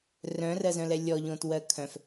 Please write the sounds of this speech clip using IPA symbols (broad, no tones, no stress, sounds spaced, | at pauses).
r œ̃ r ɜ z œ̃ l ɛ lʲ ɔ ʎ õ t w ɜ kʰ œ̃ f